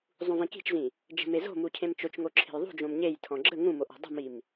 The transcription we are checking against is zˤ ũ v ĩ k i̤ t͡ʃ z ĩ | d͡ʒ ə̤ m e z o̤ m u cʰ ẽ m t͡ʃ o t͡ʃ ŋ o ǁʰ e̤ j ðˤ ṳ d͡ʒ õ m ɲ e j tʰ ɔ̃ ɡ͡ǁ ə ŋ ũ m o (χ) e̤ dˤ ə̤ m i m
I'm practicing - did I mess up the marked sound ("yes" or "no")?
yes